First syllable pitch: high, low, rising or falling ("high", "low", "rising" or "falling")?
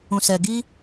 low